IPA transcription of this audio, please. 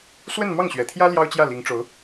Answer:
swə˥˧nmɑ˥˩ŋɕɥɛ˨˩t̪ʰjä˥ ljɑ˥ʊ̯t͡ɕjä˥˩li˧˥ŋʈ͡ʂo˧˥ʊ̯

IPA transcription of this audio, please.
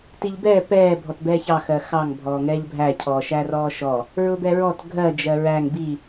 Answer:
tiʎbɛː pɛː bʱɔtbɛːçɑ xɜxɑŋ bʱɔːŋɛːʎbʱæ cʰɔːʃærɔːʃɔ | ɹʊbɛɹɔt ɡʱɜ d͡ʒɜɹæŋ bi

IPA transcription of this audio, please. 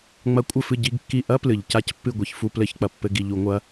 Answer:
ŋ͡mɐ˧˥kʷʼɘ˦˨fɨ˦˨ ɟi˧˥˧ɡkːi˦˨ ʔɐ˥plɨ˩ʎ ca˥cpːɨ˦˨ɡʷi˩ç fu˦˨plɘ˧˥˧çk͡pɐ˩ pːɘ˧˥˧ɡ i˩ʎu˧˩˧ŋʷɐ˧˥

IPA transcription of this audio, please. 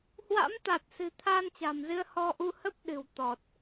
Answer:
hwa̰˧˥m t̪a˨˩t̚sɨ̤˨˩ t̪ʰaː˧nt͡ɕa̤˨˩mzɨ˧ə̯ hɔ˧ʔu˧hə˦˥p̚ɗɨ̤˨˩w t̪ɔ˨˩t̚

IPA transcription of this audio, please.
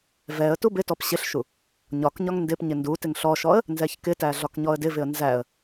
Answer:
vɛə̯ tubɪtɔp ɕɪɬʃu | ɲɒkɲɒŋ ndɪp ɲɪndutɪŋ ɬɔʃɔə̯ | nzɛçkɪtæ ɮɒkɲɔə̯dɪvɪə̯ nzæə̯

